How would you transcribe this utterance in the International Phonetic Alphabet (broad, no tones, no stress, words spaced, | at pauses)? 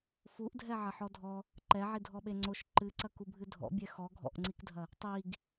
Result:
fuʔdʱɛ ʕɐħɔdʱɔ | ǃɛʕidʱɔɓe ŋ͡ǀoʃ ǃɨǀɐ kubʱɨdʱɔ̰bʲɛ xɔ ɡʱɔ̰ʔŋ͡ǀikdʱɐ | tˤiɡ